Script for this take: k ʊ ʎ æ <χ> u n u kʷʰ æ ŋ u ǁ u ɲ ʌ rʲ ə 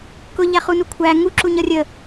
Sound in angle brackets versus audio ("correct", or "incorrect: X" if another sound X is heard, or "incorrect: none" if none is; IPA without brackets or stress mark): correct